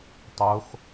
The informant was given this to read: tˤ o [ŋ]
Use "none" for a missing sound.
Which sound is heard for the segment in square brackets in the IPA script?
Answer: x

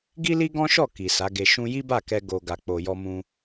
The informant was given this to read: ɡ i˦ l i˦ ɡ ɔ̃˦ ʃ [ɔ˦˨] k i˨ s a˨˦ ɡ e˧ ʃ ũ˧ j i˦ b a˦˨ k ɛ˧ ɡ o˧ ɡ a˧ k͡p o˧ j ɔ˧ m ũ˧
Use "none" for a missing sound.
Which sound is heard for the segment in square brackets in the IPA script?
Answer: ɔ˦˨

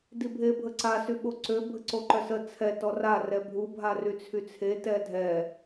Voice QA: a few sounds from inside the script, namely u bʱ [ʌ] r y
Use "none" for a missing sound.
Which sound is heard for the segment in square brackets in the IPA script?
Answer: a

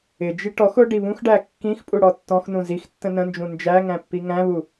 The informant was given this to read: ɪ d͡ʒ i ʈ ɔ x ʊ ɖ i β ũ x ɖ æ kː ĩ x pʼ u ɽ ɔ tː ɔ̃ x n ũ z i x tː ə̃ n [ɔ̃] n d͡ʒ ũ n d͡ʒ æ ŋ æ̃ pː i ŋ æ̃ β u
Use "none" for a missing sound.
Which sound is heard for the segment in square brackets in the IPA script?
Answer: ə̃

